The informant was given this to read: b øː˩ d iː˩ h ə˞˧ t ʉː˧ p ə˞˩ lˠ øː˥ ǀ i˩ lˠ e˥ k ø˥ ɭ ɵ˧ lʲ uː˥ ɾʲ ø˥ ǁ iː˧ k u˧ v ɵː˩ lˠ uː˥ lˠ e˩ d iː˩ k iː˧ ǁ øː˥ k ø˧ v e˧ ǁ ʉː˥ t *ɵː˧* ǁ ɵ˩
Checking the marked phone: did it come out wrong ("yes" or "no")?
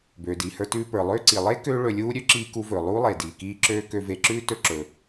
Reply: yes